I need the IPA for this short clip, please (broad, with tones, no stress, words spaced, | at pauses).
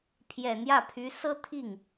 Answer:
pʰjɛ˨˩ n̪jä˥˩pʰy˧˥ sɤ˥t̪ʰi˥˩ŋ